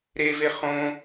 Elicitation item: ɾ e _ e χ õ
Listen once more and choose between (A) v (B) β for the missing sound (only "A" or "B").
A